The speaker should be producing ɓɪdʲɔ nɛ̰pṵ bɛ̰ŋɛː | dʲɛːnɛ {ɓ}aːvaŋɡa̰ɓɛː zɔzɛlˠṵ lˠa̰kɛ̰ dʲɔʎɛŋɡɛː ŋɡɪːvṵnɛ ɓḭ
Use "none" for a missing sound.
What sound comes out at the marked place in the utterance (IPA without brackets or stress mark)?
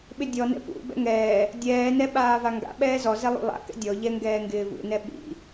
ɓ